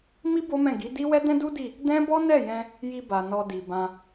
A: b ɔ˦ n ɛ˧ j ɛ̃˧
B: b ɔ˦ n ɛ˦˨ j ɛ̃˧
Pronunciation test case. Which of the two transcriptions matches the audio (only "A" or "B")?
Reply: B